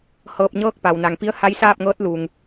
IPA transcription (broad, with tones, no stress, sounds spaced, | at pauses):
h ɤː˧ p̚ ɲ ɤː˥˨ k̚ p a˩ w n a˩ ŋ p i˧˥ ə̯ h a˧˥ j s aː˥˨ p̚ ŋ ɤː˧˥ t̚ l u˩ ŋ